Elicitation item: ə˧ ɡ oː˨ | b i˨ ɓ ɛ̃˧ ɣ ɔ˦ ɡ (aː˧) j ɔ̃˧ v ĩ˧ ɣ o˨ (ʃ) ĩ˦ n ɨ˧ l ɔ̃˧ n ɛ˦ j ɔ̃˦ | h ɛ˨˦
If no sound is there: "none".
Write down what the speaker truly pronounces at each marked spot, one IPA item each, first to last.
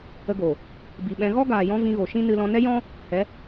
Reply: aː˨, ʃ

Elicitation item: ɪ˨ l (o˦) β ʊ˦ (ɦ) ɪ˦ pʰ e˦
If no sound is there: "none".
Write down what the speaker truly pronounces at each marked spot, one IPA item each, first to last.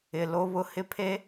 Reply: o˦, h

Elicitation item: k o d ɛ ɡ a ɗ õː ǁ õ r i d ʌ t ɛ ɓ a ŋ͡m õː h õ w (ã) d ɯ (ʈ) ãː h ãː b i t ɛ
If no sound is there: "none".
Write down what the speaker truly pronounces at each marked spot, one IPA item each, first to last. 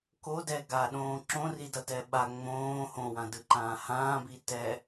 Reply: ã, ǃ

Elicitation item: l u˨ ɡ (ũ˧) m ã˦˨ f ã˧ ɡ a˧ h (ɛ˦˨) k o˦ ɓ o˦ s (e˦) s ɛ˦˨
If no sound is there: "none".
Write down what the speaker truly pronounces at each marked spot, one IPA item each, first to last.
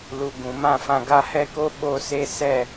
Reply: ũ˨, ɛ˦, e˦

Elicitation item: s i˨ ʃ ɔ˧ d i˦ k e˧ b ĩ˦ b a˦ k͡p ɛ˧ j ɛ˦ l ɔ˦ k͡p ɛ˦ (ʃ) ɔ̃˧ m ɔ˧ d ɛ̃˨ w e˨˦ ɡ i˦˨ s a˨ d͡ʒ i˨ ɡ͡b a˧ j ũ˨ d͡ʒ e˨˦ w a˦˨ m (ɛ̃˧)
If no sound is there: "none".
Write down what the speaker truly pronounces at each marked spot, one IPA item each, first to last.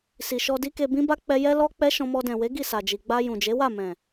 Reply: ʃ, ɛ̃˨

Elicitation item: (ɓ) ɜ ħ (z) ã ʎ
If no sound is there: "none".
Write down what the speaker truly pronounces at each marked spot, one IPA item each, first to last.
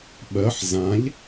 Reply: ɓ, z

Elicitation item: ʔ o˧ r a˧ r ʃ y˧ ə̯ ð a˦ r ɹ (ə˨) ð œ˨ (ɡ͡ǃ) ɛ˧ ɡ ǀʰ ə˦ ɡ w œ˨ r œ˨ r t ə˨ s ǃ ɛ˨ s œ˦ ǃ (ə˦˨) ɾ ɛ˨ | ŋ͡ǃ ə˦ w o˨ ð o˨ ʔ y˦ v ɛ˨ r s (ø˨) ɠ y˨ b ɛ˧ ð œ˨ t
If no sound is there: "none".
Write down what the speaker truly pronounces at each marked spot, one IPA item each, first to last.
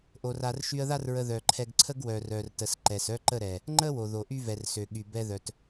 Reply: ə˧, ǃʰ, ə˦˨, ø˨

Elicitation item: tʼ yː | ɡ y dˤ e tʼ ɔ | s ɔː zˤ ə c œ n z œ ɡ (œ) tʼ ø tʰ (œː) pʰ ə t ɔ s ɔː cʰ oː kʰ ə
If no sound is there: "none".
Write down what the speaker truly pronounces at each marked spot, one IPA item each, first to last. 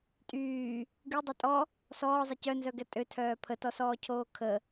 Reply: ɛ, œː

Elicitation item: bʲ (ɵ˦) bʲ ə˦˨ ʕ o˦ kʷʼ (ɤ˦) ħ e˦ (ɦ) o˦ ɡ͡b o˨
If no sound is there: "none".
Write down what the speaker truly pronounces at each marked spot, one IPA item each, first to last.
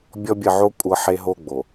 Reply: ɔ˦, ɤ˦, ɦ

